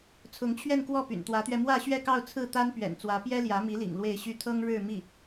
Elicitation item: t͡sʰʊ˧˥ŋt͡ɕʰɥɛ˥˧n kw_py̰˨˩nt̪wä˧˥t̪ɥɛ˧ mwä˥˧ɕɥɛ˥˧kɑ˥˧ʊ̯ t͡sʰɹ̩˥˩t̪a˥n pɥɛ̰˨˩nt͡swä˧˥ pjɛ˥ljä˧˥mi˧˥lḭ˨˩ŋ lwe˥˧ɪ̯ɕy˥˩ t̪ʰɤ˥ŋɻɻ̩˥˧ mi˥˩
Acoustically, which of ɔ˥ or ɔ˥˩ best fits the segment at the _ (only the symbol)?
ɔ˥˩